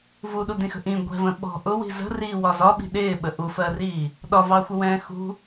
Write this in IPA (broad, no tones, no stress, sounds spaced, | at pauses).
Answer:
v u ɗ u d ĩ x ə̤ ʔ ĩ ɡʷ ɛ̤ v ə̃ ɓ ɔ̤ ʔ ʊ w i̤ z ə̤ r iː w ɒ z ɒ ɓ i̤ ɗ ɪː ɓ ə ʔ u f ɜ r iː | ɗ ɒ v ɑ xʷ ə w ɛ̃ː x ṳ